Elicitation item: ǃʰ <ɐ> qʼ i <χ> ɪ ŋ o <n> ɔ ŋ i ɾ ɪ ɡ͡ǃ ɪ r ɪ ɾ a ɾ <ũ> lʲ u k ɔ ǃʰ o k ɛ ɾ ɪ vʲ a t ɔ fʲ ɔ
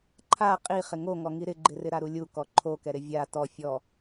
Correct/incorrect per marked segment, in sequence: incorrect: a, correct, incorrect: ŋ, incorrect: u

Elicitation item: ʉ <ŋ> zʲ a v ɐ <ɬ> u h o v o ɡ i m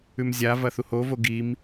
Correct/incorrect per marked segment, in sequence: incorrect: m, incorrect: θ

